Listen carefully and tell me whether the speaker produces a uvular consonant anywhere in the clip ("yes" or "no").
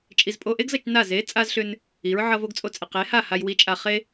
yes